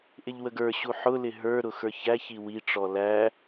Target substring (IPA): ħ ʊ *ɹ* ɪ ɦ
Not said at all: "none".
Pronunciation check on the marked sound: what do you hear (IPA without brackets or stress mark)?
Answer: l